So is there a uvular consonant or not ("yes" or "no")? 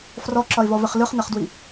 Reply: yes